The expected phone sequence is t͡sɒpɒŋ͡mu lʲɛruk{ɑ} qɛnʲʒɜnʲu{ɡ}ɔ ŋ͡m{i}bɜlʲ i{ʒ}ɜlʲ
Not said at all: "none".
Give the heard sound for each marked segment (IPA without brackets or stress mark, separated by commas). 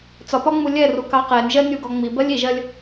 ɑ, ɡ, i, ʒ